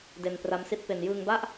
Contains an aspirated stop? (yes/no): no